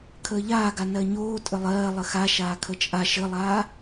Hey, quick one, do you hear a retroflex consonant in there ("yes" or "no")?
no